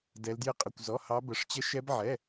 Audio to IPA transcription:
d ɛ˦˥ l d j ɪ˦˥ qʼ ə˧˥˧ kʷ z ɔ˧˥˧ h ɑ˦˥ b ə˧˥˧ ʂ t͡ɕ ə˦˥ ʃ ɛ˦˥ b ʕ ɛ˧˥˧

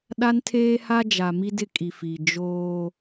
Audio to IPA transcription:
ɗ a˦ n tʰ eː˦ h a˦ d͡ʒ a˨ m i˦ d ɪ˦ kʼ i˨ f i˨ d͡ʒ oː˦

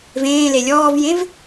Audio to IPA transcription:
v ẽː l e lʲ ɔː v j ẽ v

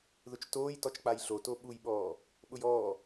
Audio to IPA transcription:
ð ʊ t͡ʃ t oː j t ɔ t͡ʃ k͡p a j ɬ o t o ɓ u j ɓ ɔː | ɓ ʊ j ɔː

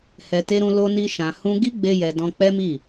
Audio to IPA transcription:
h ɛ˨ t e˧ ɾ ũ˧ l o˧ n i˧ ʃ ã˨ h ũ˧ ɡ i˦ ɡ͡b e˧ j ɛ˨ d ɔ̃˧ k͡p ɛ˦ m i˦˨

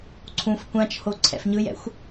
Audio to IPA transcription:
ǀʰ ũ f kʷ ã t͡ʃ h o ǀʰ ɛ̰ f ɲ ɯ j ɛ̰ xʷ

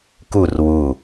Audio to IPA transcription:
k u r w u

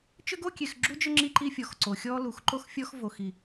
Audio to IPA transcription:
t͡ʃ ʏ˦ ɡ o˦ kʲ e˨ x ɡ͡ǁ u˦ d͡ʒ ʏ˦ ŋ͡ǁ i˦ ǃ i˦ fʲ ɔ˨ x ǀ o˨ xʲ ɔ˦ l u˨ x ǃ o˦ x fʲ ɔ˦ x v o˨ x i˨

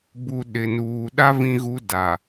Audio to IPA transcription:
b u˨ ɗ ɪ˨ n uː˨ ɗ a˦ v ĩ˦ ɣ u˦ d a˨

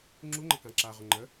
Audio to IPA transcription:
ŋ͡ǁ u ŋ͡ǃ ə k ã ǁ a ʁ ʊ ŋ͡ǃ ə

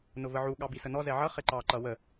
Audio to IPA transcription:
n ʊ v ə ʕ u ɠ ɑ b i s ə n ɔ z ɛ ʕ ʌ χ ɪ ǃ ɑ ǃ ʌ w ə

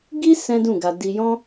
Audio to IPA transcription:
ɡ i˦ s ɛ̃˦ d ũ˦˨ ɡ a˧ d i˧ j ɔ̃˦

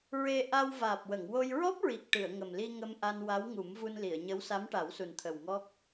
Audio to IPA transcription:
ɹ e˧ ʔ a˧ w v aː˨˩ p̚ w ə˨˩˨ ŋ w o˧ j ɹ ɔ˦˥ p̚ ɹ i˨˩ k̚ ʈ ɨ˨˩˨ ə̯ ŋ ə˨˩ m l i˧ ŋ ə˧ m ʔ a˧ n w a˧˥ w ŋ u˨˩˦ m v u˧ n l i˨˩˨ ə̯ ɲ ə˧˥ w s a˧˥ m ʈ a˨˩˦ w s u˨˩ n t̪ʰ ə˨˩ w ŋ ɔ˦˥ k̚

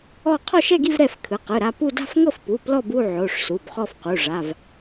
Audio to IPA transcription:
ɔ˥˧ qʰ ɔ˥˧ ʃ ɛ˥˧ ɡ i˥˧ v ɾ ɛ˥˧ f kʰ ɯ˩˧˩ q ɯ˩˧˩ ɾ a˥˧ p u˥˧ d a̤˥˧ f ŋ ɤ˥˧ f p u˩˧˩ p l ɔ˥˧ b u˥˧ ʕ o˩˧˩ ʂ s u˩˧˩ b χ ɔ˥˧ f q u˩˧˩ ʐ a˩˧˩ v

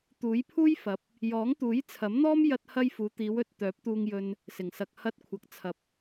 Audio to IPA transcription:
t̪ uː˨˥ j pʰ uː˥ j f ɐ˨˥ p̚ | j ɔː˨˥ ŋ t̪ uː˨˥ j t͡sʰ ɐ˨˥ m n̪ ɔː˥ m j ɐ˧ t̚ h ɐ˧ j f uː˨˧ t̪ iː˨˧ w ɵ˨˥ t̚ t̪ œː˨˥ p̚ t̪ uː˧ ŋ j ɵ˧ n | s ɪ˨˩ ŋ s ɐ˨ k̚ h ɐ˧ t̚ kʷʰ ɐ˨ k̚ t͡sʰ ɐ˨ p̚

